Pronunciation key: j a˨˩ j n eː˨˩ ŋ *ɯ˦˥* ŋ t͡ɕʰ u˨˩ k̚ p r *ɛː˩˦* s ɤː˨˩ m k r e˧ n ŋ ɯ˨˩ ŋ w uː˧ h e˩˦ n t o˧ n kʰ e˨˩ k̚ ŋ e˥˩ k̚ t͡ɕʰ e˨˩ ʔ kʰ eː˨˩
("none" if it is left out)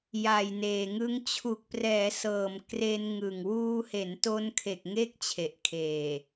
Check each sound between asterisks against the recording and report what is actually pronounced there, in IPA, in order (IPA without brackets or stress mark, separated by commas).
ɯ˦˥, ɛː˩˦